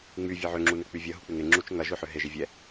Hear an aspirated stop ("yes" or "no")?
no